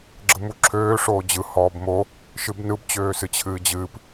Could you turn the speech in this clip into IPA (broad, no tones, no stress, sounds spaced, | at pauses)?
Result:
ɡ͡ǁ ɯ m u ǁʰ øː ʂ oː d͡ʑ ɯ h ɔː b m o | ʃ ɨ b n ɯ b t͡ɕ øː s ɨ t͡ɕʰ ɨː d͡ʑ ɨː p